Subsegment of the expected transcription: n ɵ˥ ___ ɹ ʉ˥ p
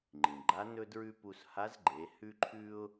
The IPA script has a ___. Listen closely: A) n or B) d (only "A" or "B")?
B